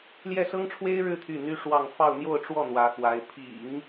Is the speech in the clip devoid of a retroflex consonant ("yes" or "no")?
no